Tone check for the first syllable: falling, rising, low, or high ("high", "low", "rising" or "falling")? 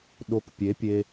rising